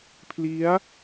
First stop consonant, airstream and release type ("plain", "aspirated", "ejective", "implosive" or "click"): aspirated